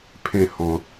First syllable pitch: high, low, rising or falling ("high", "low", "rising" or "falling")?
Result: low